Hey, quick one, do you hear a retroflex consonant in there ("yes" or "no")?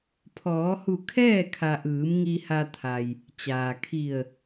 no